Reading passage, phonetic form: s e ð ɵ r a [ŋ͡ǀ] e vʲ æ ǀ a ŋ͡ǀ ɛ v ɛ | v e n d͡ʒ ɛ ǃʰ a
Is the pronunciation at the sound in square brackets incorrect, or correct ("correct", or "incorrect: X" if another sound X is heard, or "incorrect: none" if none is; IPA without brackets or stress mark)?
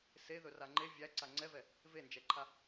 incorrect: ŋ͡ǃ